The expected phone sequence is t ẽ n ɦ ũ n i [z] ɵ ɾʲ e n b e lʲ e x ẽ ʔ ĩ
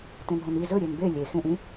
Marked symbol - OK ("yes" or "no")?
yes